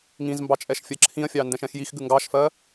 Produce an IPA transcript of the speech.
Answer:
ŋ ĩ z m b ɑ t͡ʃʼ ɛ ʃ fʲ ɜ ǁʰ ĩ ɐ̯ fʲ ɑ n d ɛ̃ ʃ ɛ̃ x j i x ɡ ʉ ŋ ɡ ɑ ʃ f ɜ

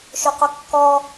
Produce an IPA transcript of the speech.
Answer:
ʃ ɵ q ɵ kː ɔ

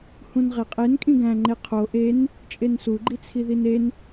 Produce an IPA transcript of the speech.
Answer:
h ũ n ʁ e qʼ e n kʼ ĩ ɡ æ̃ ŋ͡ǃ e qʰ o ʔ e n | t͡ʃʼ e n s u ɡ͡ǃ i t͡sʰ i ð i n e n

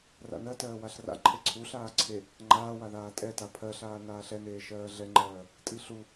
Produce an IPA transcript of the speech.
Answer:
r a̰ n ɜ t ɜː w a ɬ r a̰ ǃʰ e ǀʰ u ɬ aː ǀʰ e | ŋ͡ǃ aː w a ð aː tʼ ɛ t a pʰ ɜ ɬ aː n aː ɬ ɛ n eː ʃ ɜː ɮ ɛ ŋ͡ǃ ɜː | tʼ i ɬ u

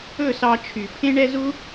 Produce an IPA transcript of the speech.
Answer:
ɵ˦˨ s ɑ˧ t͡ʃʰ y˨ pʰ ẽ˦ ɳ ɛ˦ z u˦

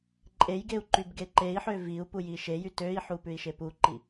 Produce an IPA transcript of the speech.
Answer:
ǃʼ e j ɡ e u̯ ǃ y b ɡ e ǃ e i̯ ħ ø v i u̯ p u j i ʃ e j y t ø i̯ ħ u p ʉ i̯ ʃ e p u ǃ i

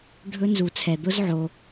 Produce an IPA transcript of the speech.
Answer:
ɖʱ ɵ˦˥ n z u˨ t͡sʰ ɛ˨ d̪ ʊ˦˥ z ʕ o˨

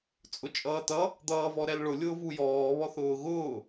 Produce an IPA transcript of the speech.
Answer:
t͡sʼ ʊ t͡ʃʼ ʌː t ʌ | d̪ ʌː v ɔ ɾ ɛ l ɭ ʊ lʲ ʊː v u j ɔː β ɔ θ ʊː ɣ ʊː

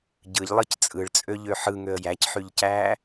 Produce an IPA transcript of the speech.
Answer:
ɟ ɯ ʎ lˠ ɯ c t͡sʼ ɯ ɭ t͡sʼ ø ʎ ø ħ ɯ ŋ ø ə̯ j æ c ħ y ʎ c æː

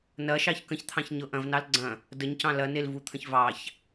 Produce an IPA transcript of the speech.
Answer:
n ɐ ʃ ɑ ç k ə̃ ç t̪ʰ ɑ̃ ç ɲ ɤ ʔ ɐ̃ v n ɑ l ɡ͡ǀ ɐ̃ | d ə ɲ c ɑ̃ l ɐ n e l v u t̪ʰ ə̃ ç v ɑ ç

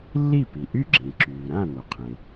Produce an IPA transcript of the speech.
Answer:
lː i˥˩ p i˩ ʔ y˥˩ ɡ͡ǁ ĩ˩ ǁ yː˩ ɾ ã˥˩ n o˩ qʰ ẽ˩

